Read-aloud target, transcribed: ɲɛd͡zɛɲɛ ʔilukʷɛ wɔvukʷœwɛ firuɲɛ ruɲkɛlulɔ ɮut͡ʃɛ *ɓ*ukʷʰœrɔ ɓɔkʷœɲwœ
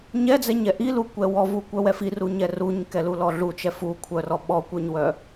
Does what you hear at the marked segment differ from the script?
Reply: yes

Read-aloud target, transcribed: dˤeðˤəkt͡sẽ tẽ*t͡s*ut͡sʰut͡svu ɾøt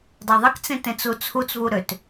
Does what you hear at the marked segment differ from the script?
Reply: no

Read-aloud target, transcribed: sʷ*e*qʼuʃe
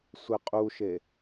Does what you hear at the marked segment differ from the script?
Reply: no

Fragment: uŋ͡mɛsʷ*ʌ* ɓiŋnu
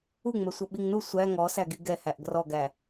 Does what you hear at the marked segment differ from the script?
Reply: no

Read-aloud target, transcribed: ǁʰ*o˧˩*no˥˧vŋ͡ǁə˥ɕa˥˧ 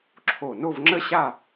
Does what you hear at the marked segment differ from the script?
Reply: no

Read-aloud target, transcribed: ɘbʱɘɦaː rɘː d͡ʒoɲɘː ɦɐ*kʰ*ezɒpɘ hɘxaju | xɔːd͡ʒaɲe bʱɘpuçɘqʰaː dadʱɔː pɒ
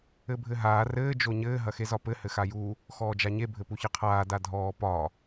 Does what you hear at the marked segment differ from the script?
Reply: yes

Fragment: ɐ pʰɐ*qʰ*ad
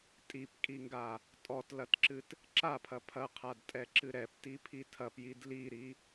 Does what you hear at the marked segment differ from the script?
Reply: no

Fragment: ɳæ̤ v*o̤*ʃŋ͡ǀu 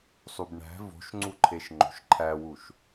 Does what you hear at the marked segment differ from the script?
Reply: no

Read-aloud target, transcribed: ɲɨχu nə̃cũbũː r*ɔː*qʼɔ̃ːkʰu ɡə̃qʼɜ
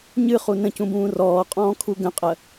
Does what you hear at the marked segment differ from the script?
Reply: no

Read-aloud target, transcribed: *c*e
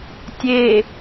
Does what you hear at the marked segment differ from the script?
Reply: yes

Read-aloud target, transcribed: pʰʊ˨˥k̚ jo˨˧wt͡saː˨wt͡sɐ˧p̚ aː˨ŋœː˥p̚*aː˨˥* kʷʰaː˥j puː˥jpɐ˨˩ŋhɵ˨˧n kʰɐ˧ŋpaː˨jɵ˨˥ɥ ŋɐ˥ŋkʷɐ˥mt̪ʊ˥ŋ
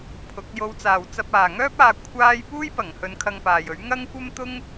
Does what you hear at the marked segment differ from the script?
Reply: yes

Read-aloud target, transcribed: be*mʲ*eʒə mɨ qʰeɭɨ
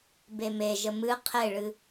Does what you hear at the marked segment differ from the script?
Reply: yes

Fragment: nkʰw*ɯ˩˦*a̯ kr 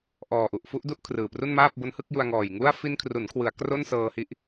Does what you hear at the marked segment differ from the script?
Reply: no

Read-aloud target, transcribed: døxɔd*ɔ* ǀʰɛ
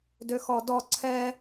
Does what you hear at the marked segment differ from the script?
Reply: no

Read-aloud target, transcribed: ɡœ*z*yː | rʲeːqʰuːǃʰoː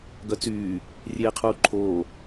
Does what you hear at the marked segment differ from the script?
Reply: yes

